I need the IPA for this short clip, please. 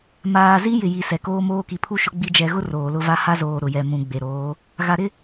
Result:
m aː˨ z i˦ j ɪ˨ j i˨ s ɛ˨ k oː˦ m oː˦ k i˨ pʰ u˦ ʃ ʊ˦ ɡ͡b i˦ d͡ʒ ɛ˨ ɣ ʊ˦ r oː˨ l ʊ˦˨ v a˦ h a˦ z oː˨ ɾ ʊ˨ j ɛ˨ m ũ˨ ɡ͡b e˨ ɾ oː˨˦ | ɣ a˨ ɾ ɪ˦

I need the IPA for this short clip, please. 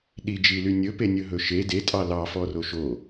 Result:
ɗ i d͡ʒ i l y nʲ ɵ p e nʲ ɵ ɦ ɵ ʃ e d e tʼ ɑ l ɑ f ɔ r o ʃ o

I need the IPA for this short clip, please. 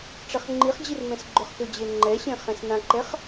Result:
ʈ͡ʂ ɛ χ ŋ͡ǃ i χ d͡ʑ i r m ɛ̃ s ɡ͡ǃ ʏ χ k ʏ d͡ʑ e ŋ͡ǃ ɛ ɕ ẽ χ ɛ̃ s n ã ǃ ɛ χ

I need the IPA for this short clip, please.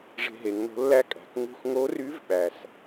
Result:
ʐ e̤˧ ɦ e˩˧ ŋ n̪ o̤˧˥ lː æ˥ kʼ æ̤˩˧ k ŋ ṳ˧ x ŋ o˧˥ r y˧˥ v ɓ æ˩ s

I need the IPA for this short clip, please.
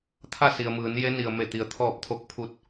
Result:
t̪ʰ a˥˨ s i˩ ə̯ m ɯː˩˧ n j e˧˥ n i˩ ə̯ m e˧˩ t̪ i˩ ə̯ t̪ʰ ɔː˧˩ p̚ t̪ʰ o˧ k̚ pʰ u˧˩ t̚

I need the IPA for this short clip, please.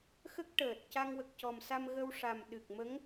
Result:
x ə˦˥ k̚ ʈ əː˨˩ t̚ c a˧ ŋ w ə˨˩ k̚ c ɔ˨˩ m s a˧ m ɣ ə˧ w ʂ a˨˩ m ɗ ɨ˨˩ k̚ m ə˧˥ ŋ

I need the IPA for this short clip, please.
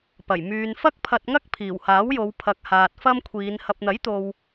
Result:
p ɐ˨˩ j m yː˨ n f ɐ˥ k̚ pʰ ɐ˧ t̚ ŋ ɐ˥ k̚ pʰ iː˨˩ w h aː˨˥ w j o˨˧ w pʰ ɐ˨˥ k̚ h aː˨ t̚ f ɐ˥ m kʷʰ iː˨˧ n h ɐ˨ p̚ n̪ ɐ˨˥ j t̪ o˨ w

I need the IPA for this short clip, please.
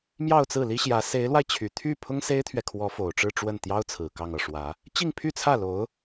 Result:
m j ɑ˥˧ ʊ̯ t͡s ɹ̩˥˩ l i˥ ɕ j ä˧˥ s e˧˥ ɪ̯ l w a˧ ɪ̯ t͡ɕʰ y˨˩ t̪ʰ y˥˩ pʰ ʊ˥ ŋ s e˥ ɪ̯ t̪ʰ ɥ ɛ˨ kʰ w ɔ˧˥ f o˨˩ ʊ̯ ʈ͡ʂ ɻ̩˥˧ ʈ͡ʂ w ə˥˩ n t̪ j ɑ˥ ʊ̯ t͡sʰ ɹ̩˨˩ k ɑ˥˧ ŋ ɤ˥˩ ʂ w ä˧˥ | t͡ɕ i˥˧ ŋ pʰ y˥˧ t͡sʰ ä˥˩ l o˧˥ ʊ̯

